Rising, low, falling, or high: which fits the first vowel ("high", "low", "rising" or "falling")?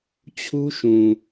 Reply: high